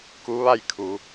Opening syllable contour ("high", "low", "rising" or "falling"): rising